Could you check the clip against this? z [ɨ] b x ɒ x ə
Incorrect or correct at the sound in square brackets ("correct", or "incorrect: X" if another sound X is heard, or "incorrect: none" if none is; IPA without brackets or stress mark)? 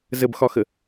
incorrect: ə